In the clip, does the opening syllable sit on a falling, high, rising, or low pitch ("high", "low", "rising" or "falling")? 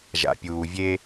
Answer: low